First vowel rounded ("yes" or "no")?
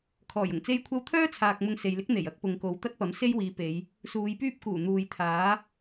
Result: yes